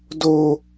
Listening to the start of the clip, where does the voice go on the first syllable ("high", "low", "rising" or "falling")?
high